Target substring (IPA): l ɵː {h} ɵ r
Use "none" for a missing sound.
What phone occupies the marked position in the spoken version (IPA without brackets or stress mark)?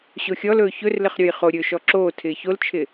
ç